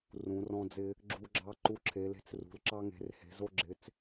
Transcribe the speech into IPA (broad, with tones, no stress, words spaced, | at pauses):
rũ˩˧rɔ̃˧d͡zɪ˧ | ɡ͡ǁu˧ɡ͡ǁɑ˧ ǃu˧ǁʰe˩˧le̤˧t͡s rṳ˩˧lǁɑ˧ ŋe̤˩˧rhe̤˩˧zo˧ɡ͡ǁɪ˩˧t͡s